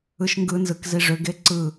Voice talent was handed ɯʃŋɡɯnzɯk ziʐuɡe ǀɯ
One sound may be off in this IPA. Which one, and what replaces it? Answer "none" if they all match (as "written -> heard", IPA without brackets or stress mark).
u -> ʏ